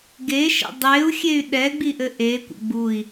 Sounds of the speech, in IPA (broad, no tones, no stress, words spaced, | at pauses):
ɡeʃə̰ dˤeu̯xʲey̯ ɗɛɡ͡biʔɘ ʔekʷə̰ ɡ͡bui̯